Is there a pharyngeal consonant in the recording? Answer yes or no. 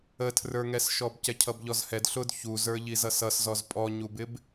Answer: no